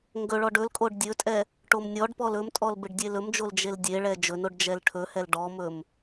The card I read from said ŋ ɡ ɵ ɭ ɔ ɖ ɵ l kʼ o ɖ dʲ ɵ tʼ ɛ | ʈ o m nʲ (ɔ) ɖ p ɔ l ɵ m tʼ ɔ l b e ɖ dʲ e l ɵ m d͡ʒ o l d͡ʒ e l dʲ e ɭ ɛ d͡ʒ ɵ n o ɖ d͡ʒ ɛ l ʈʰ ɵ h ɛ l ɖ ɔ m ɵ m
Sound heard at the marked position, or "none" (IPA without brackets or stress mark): ɔ